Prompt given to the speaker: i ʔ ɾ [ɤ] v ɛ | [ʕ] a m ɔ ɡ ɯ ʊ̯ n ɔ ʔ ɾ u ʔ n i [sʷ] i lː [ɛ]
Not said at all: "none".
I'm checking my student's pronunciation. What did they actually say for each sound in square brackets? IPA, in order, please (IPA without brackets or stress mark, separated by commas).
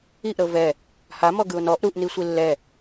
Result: ɤ, h, sʷ, ɛ